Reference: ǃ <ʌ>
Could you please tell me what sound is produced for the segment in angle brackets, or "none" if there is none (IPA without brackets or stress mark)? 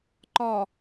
ɒ